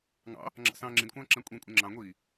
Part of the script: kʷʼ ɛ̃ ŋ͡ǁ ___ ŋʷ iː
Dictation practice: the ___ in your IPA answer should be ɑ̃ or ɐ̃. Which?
ɑ̃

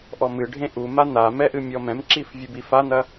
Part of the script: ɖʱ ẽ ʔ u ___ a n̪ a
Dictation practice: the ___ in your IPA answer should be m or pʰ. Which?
m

